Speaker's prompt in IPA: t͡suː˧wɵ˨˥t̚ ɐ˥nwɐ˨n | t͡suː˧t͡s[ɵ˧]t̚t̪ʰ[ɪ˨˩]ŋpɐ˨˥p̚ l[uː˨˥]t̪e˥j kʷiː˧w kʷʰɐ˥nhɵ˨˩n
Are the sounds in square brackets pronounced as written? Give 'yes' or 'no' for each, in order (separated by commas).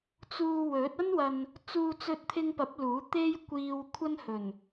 yes, no, yes